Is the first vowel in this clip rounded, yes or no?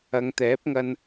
no